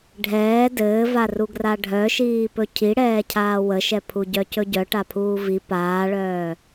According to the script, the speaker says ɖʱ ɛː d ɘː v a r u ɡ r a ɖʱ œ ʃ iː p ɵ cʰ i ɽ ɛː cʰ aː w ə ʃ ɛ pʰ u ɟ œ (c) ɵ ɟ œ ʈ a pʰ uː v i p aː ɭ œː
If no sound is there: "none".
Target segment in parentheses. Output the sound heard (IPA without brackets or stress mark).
c